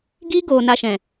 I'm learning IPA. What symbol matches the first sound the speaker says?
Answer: ɡ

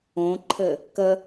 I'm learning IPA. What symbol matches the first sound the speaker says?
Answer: õ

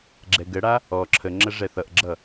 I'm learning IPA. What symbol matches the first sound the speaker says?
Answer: ɡ͡ǁ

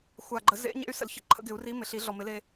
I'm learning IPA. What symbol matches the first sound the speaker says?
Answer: xʷ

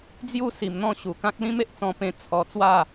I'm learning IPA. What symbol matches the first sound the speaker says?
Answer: d͡z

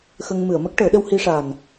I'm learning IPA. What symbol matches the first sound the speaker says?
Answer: x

